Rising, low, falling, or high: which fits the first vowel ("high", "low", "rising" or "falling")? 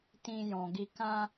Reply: high